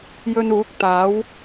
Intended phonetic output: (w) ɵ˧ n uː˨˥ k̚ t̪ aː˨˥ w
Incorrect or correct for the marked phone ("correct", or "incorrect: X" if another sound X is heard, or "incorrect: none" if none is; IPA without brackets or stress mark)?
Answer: incorrect: j